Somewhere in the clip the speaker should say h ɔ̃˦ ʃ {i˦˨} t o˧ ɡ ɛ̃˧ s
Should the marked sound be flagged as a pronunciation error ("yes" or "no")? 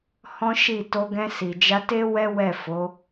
no